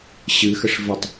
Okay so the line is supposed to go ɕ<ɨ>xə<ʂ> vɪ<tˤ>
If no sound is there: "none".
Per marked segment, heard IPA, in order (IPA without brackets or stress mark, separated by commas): ɨ, ʂ, tˤ